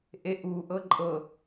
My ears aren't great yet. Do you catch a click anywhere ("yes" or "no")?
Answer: yes